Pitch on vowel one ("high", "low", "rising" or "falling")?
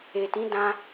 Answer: low